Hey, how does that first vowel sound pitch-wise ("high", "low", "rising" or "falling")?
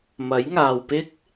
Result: rising